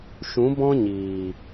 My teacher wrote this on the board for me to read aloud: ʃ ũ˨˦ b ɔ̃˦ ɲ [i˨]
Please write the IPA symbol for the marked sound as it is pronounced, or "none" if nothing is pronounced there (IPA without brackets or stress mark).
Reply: iː˨